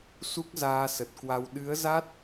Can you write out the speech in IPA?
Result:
su˦˥k̚zaː˧sə˨˩t̚kwa˧w ɗɨ˨˦ə̯za˦˥t̚

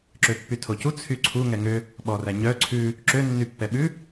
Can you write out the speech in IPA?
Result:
ǁøpːytʰocu t͡sʰyǀʰu ŋɛŋø | ɓɔræɲœ ǀʰʉ | ǁø nːypːɛɓʉ

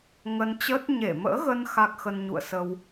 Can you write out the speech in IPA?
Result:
ŋə˧nt͡ɕəː˦˥t̚ ɲe˧˩mə̰ː˧˥ɣə˧n xa˦˥k̚xə˧n ɲṵ˧˨ə̯sə˧w

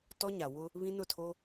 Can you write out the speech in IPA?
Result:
tɔ˦ɲa˨wʊ˦ | βĩ˦nʊ˦˨tʰo˦

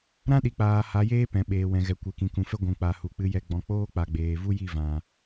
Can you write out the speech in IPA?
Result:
ɾã˦ɗi˨k͡paː˨ ha˨˦jeː˦pɛ̃˨ ɓeː˨ wɛ̃˨ɣɛ˨kʷe˨kĩ˨ kũ˨fɛ˦ ɡʷũ˨k͡pa˨ hu˨k͡pɨ˧jɛ˧ ɡ͡bɔ̃˨k͡poː˦ k͡pa˨ɡ͡beː˨vu˦ ji˦˨vã˨

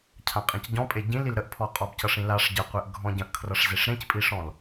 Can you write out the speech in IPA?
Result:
cʰãqʼĩcɟɔ̃pʼe ɟĩl ilɾəʔpʰɔ qʼɔbcʌʂĩlaʂ ɟəqʷeʔ ɡʱɔ̃ɟə̃ʔkʰrʌʂ zeʂɾẽcpʼiʂɔ̃l

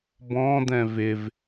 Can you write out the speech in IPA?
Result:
bɔ̃d̪ɛ̃ vɪv

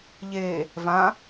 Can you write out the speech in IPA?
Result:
ʎe | vã

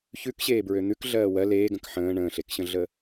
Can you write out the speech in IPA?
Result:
çʉkɕeːbɹø n̪ʉk ɮɜːwɜ leːɡə̃k ħə̃ː ɳə̃ːɬekɕə̃ɮə

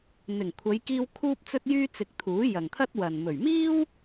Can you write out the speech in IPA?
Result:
n̪ɪ˨˩ŋ kʷʰɐ˨˧jkiː˧w kʰuː˧p̚t͡sɵ˧t̚jyː˧t͡sɪ˨k̚ t̪ʰuː˨˥ jɐ˨ŋt̪ʰɐ˥t̚wɐ˨n mɵ˨˩ɥmiː˥w

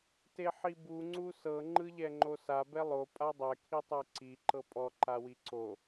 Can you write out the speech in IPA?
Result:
teħibu ŋ͡ǀusɤ ŋ͡ǃɯʎɛŋ͡ǃosa bɛlˠo pʼadˤɛ kʰitˤeǀi ǃɤpʼɔ ǃawiǀo

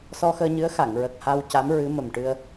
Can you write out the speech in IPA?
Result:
sɔ˧xəː˧ɲɨ˧˥ə̯xa˨˩˨ŋ ɹə˨˩k̚ha˧wca˧˥m ɹɨ˧˥mə˨˩mʈɨ˧ə̯

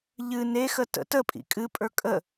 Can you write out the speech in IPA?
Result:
ʎɨ nexə tə̰ təpʼḭ kʼɨpʼə˞ kʼə

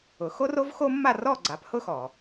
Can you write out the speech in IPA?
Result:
ʊ˩xo˥r o˥vxo˥ mːa˥˩rɔ˥˩ ɡ͡ǀa˩˥phʊ˥xɔ˩

